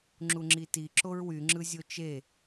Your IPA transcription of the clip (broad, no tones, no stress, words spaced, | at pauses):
ŋ͡ǁuŋ͡ǁiti ǁoɹwy ŋ͡ǁɯzʲot͡ʃe